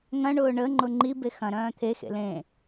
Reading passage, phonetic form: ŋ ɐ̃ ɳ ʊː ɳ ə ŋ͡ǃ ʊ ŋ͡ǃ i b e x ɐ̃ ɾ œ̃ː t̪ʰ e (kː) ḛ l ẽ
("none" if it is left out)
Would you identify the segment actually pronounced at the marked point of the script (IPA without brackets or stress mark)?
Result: x